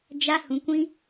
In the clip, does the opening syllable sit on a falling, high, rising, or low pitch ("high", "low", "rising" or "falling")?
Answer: high